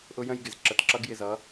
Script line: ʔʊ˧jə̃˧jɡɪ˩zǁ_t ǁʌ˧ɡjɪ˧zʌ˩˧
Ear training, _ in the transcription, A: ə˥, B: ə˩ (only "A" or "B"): B